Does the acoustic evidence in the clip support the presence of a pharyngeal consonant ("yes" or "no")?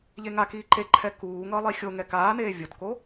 no